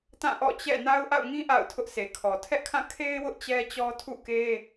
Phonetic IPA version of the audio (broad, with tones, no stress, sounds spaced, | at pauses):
t ã˦˨ ʔ ɔ̰˦˨ t͡ɕ ɛ̰˦˨ n a˦ ʊ̯ ʔ a̰˦˨ ʊ̯ ŋ ĩ˦ ʔ a̰˦˨ ʊ̯ tʰ ʊ˦ ʔ s e˨ kʰ ɔ˨ tʰ ɛ˦ ʔ kʰ ã˦˨ kʰ e˦ ɪ̯ w ʊ˦ ʔ t͡ɕ ɛ˦ t͡ɕ ɔ˦ tʰ ṵ˦˨ k e˦